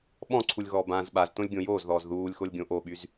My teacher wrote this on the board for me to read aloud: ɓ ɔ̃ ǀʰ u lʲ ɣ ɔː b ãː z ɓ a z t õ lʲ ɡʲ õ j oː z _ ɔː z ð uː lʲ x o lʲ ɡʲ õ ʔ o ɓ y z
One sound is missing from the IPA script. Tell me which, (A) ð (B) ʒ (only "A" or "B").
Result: A